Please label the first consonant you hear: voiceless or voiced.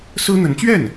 voiceless